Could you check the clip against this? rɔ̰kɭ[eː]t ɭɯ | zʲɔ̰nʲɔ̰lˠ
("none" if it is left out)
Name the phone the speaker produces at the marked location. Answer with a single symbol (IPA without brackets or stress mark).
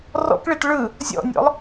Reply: e